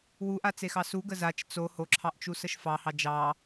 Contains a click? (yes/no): yes